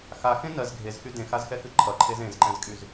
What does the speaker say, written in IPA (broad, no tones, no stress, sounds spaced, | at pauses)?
x a x ẽ n ɜ z ɡʱ e z x y d ẽ x a z x ɛ x ɨ ǃʰ ʌ ǃʰ e z ẽ z ǃ ɛ̃ z kʼ y z